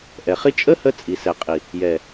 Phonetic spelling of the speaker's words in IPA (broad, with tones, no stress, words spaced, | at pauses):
ʔɛ˨χi˦ t͡ʃʼə˦hə˧ t͡sʼi˨sɛ˨qʼi˨ | jɛ˨